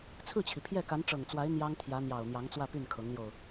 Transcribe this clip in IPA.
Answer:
t͡sʰ ɹ̩˥˩ t͡ɕʰ i˩ pʰ j ɛ˥˩ k a˧˥ n ʈ͡ʂ ɤ˨˩ ŋ t͡s w a˧˥ ɪ̯ n̪ j ɑ˥ ŋ t̪ʰ j ä˧˥ n̪ j ɑ˨˩ ʊ̯ n̪ j ɑ˧˥ ŋ t͡s w ä˥˧ p y˥˩ n kʰ ɤ˧˥ ŋ l j o˧ ʊ̯

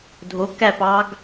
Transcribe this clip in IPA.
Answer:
dʱ o k æ p ɑ ɡ

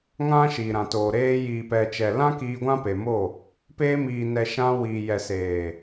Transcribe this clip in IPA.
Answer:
ŋ ã˦ ʃ iː˨ ɾ ã˨ t oː˨ ɾ eː˧ j iː˨ p ɛ˨ t͡ʃ ɛ˨ l ã˦ k iː˧ ɡʷ ã˦ p e˨ m o˦˨ | p eː˧ m iː˨ n ɛ˨ ʃ ã˧ w iː˨ j ɛ˨ s eː˨

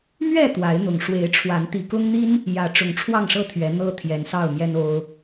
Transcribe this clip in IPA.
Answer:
m ɥ ɛ˥˨ t̪ w a˨˦ ɪ̯ n̪ ʊ˨˩ ŋ ʂ w e˨˦ ɪ̯ ʈ͡ʂʰ w a˨˦ n t̪ i˨˩ k ʊ˦ ŋ n̪ i˦ n | j ä˨˦ ʈ͡ʂ ʊ˨˩ ŋ ʈ͡ʂʰ w ɑ˥˨ ŋ ʂ ɤ˥˨ t̪ʰ ɥ ɛ˨˦ n̪ ɤ˦ t̪ʰ j ɛ˨˦ n s ɑ˥˨ ʊ̯ m j ɛ˦ n o˦ ʊ̯

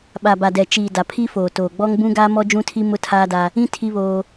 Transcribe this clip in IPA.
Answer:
ɓ a˨ b a˨ d ɛ˨ t͡ʃ iː˨ d a˨ pʰ i˦ f oː˨ t oː˨ ɡ͡b ɔ˦ ŋ b ũ˦ ɡ aː˦ m ɔ˦ d͡ʒ ũ˦ tʰ i˦ m ʊ˦ tʰ aː˦ d a˦ | ĩ˦ tʰ i˦ β oː˦

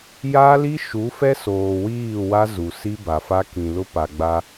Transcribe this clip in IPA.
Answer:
j a˦ l i˦ ʃ u˨˦ f ɛ˦ s oː˨ w iː˦˨ w a˦ z u˨ s i˦ b a˨ f a˦ k ĩ˨ l ʊ˦ p a˨ ɡ͡b a˦

